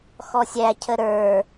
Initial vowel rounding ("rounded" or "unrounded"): rounded